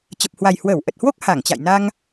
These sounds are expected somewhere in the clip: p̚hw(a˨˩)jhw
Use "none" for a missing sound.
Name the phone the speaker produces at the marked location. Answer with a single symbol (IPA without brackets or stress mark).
a˨˩